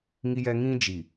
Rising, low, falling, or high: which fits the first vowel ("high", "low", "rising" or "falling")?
high